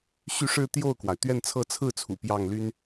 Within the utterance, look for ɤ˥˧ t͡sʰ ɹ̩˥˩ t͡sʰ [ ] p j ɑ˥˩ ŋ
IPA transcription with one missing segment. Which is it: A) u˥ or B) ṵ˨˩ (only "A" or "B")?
B